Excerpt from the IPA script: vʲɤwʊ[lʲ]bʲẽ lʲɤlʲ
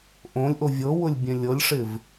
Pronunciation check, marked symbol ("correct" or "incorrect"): correct